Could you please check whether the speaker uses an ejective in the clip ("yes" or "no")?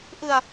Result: no